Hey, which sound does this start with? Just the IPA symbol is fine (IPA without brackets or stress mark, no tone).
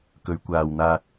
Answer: k